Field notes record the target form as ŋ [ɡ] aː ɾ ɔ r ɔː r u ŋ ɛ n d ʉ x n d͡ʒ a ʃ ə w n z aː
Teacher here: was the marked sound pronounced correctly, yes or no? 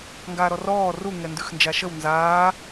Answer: yes